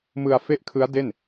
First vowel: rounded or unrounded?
unrounded